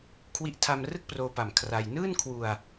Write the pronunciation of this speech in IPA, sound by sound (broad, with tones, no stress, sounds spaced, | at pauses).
kʰ w i˦˥ ʔ tʰ a˧ m r ɯ˥˩ k̚ p r oː˧ p a˨˩ m kʰ r a˧ j n ɯː˥˩ n kʰ w u˧ a̯